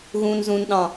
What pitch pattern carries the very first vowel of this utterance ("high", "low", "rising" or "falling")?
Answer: low